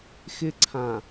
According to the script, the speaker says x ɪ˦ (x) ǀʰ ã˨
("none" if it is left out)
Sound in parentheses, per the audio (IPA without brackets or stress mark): none